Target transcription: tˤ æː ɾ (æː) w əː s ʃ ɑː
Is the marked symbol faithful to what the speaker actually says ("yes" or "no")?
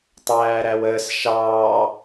no